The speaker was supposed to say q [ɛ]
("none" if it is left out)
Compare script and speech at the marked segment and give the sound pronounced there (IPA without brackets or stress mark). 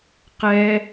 ɛ